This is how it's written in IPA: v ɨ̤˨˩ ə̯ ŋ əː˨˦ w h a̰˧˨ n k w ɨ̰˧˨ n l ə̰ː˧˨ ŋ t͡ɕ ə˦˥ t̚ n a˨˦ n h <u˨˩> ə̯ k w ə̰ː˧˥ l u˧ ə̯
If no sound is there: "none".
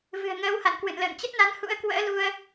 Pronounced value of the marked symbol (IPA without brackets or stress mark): ṵ˧˥